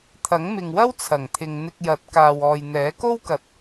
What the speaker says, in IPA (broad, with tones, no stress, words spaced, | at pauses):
t̪ʰɐ˨˥ŋmɪ˨ŋwɐ˥w t͡sʰɐ˨˩ŋt̪ʰɪ˨ŋ n̪ɪ˧k̚jɐ˨˥t̚kaː˨wɔː˨j n̪ɛː˨˥ko˥wkɐ˨t̚